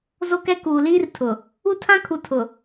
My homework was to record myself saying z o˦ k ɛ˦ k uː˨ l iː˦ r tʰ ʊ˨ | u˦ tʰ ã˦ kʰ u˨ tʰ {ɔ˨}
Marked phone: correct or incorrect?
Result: incorrect